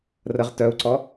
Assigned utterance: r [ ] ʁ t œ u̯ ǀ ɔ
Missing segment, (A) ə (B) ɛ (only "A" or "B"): A